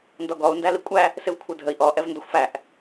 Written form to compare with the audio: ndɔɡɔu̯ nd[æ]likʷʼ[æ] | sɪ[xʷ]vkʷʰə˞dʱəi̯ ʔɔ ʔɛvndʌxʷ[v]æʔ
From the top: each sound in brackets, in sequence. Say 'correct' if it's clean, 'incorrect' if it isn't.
correct, correct, incorrect: none, incorrect: f

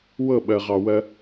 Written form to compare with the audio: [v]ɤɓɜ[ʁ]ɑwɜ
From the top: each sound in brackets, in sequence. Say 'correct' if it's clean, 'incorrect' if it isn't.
incorrect: w, correct

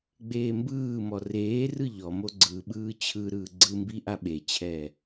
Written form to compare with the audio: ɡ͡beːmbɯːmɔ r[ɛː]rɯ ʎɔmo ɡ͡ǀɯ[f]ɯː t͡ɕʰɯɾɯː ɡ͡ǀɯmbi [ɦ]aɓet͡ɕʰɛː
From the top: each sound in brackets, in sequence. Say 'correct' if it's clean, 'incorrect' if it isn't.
incorrect: eː, incorrect: ɓ, incorrect: ʔ

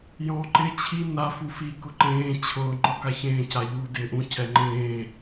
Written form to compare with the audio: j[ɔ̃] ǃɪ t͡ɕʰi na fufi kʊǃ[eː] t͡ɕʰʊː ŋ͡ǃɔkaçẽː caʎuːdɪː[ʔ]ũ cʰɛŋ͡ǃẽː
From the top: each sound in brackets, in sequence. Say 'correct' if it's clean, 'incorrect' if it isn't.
correct, incorrect: ẽː, correct

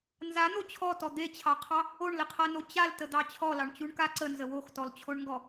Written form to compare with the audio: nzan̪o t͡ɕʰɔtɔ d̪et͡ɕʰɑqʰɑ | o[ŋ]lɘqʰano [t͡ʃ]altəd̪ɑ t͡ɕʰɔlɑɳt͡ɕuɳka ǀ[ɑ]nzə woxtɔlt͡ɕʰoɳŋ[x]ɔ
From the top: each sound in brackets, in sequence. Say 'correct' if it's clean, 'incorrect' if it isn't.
incorrect: ɳ, incorrect: t͡ɕ, incorrect: ə, incorrect: ɡ

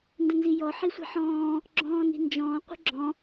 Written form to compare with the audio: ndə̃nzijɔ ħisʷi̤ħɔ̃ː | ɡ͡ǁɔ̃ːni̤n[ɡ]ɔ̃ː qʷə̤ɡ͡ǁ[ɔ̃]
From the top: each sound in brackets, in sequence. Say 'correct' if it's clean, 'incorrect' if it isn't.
incorrect: d͡ʒ, correct

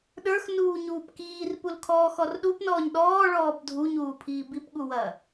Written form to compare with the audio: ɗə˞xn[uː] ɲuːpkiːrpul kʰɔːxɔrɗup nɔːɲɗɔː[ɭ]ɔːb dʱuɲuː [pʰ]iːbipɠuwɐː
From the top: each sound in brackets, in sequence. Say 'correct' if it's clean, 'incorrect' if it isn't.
correct, correct, correct

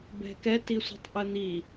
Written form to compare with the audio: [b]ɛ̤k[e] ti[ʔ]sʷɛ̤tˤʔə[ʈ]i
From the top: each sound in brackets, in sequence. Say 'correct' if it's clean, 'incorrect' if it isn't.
correct, incorrect: ɛ, incorrect: none, incorrect: n̪

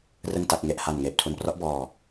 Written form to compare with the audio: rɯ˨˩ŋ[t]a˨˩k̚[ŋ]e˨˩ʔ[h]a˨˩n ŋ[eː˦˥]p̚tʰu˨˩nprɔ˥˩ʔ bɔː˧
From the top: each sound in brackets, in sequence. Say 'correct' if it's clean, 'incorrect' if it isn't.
correct, correct, correct, incorrect: eː˨˩

